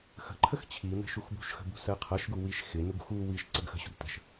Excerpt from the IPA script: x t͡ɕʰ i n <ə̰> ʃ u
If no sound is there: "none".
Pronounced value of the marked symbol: ə̤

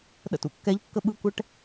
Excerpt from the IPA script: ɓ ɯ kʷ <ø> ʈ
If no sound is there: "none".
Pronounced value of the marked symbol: ɛ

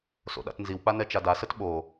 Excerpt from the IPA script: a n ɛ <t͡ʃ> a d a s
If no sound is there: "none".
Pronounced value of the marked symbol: t͡ʃ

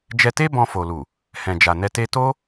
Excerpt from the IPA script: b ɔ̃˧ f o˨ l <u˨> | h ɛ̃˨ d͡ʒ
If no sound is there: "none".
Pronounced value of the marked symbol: u˨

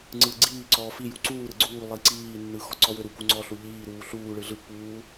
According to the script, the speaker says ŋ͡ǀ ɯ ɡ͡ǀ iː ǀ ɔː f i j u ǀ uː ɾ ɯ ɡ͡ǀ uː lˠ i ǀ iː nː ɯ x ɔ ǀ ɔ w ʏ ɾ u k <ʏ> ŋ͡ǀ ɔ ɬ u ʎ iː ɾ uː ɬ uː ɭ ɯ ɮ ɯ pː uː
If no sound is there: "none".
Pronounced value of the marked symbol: u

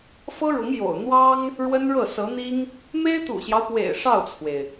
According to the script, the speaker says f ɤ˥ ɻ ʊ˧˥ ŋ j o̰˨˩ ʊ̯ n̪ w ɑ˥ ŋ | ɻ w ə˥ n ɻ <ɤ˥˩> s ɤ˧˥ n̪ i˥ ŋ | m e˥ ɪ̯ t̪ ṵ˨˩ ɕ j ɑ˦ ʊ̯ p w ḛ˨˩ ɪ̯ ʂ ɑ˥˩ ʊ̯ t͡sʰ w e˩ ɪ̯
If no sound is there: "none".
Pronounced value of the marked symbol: ɤ˥˩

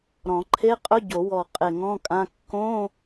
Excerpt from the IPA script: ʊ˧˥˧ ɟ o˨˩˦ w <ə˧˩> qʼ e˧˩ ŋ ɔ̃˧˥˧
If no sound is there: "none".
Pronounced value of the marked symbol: ɔ˧˩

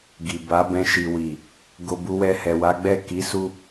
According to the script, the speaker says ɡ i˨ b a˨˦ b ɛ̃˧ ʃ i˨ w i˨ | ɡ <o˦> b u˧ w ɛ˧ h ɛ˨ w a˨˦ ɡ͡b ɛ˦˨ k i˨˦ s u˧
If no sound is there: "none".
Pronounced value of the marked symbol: o˧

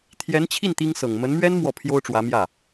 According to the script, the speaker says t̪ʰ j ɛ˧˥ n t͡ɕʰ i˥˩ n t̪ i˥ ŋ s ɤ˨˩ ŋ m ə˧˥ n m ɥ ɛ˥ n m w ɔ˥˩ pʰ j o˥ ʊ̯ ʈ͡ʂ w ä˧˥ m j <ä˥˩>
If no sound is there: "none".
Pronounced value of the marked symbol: ä˥˩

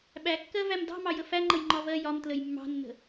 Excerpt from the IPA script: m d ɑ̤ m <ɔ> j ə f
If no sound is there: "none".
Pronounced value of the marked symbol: ɑ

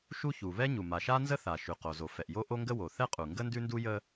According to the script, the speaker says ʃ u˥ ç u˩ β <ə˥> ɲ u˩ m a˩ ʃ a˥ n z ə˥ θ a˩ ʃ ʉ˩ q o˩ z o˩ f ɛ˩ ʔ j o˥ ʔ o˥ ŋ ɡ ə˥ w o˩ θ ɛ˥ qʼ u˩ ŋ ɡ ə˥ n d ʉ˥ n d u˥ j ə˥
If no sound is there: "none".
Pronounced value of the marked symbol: ɛ˥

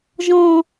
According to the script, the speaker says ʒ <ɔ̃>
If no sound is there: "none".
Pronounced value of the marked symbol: ɔ̃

